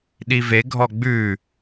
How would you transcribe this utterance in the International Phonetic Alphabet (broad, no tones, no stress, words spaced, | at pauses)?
ɗiveɡʱɔ ɡ͡bʉː